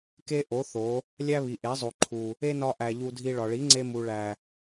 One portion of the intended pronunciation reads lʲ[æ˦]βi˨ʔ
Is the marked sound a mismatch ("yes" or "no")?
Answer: no